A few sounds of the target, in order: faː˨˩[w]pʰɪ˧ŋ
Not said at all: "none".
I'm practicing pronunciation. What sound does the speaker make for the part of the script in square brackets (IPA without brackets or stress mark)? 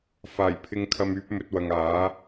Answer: j